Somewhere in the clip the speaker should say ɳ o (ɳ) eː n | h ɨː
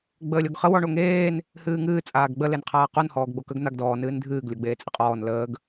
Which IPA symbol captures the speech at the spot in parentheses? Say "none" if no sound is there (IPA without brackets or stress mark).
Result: ŋ